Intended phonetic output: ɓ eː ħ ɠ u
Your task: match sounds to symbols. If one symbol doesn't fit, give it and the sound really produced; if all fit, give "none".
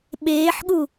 none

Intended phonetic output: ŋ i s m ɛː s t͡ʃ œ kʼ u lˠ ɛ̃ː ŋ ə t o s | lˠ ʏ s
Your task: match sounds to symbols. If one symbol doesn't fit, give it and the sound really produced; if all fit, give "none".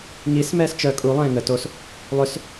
none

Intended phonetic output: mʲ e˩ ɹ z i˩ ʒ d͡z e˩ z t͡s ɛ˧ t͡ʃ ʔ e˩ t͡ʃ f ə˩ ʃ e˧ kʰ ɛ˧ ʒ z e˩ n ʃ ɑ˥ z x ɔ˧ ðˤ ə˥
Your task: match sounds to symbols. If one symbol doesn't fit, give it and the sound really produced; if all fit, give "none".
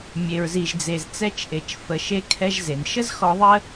ɑ˥ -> ə˥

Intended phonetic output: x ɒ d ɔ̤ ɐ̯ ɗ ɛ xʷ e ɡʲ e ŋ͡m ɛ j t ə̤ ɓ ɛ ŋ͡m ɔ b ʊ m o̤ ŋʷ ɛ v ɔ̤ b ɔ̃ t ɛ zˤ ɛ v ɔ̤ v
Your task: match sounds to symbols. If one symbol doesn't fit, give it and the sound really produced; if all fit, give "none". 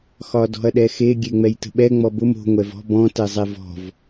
xʷ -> x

